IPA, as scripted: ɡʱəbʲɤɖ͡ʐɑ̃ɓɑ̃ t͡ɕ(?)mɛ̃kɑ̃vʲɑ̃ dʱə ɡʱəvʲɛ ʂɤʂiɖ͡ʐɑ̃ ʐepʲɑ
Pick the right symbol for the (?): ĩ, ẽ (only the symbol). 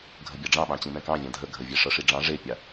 ĩ